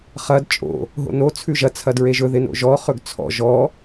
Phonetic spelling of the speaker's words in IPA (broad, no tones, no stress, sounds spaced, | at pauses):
χ ɐ d t͡ʃʼ o̰ | ɦ o̰ n o t͡sʰ ʉ ʒ ɐ t͡sʰ ɐ d ɹ e ʒ ɵ ð ɪ n o̰ ʒ ɔ χ ɵ ɡ t͡sʰ ɔ̰ ʒ ɔ